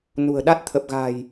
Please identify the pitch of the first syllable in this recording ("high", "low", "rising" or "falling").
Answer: low